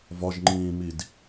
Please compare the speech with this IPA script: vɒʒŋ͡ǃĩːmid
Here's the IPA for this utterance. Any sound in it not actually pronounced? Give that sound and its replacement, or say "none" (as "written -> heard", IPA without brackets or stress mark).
none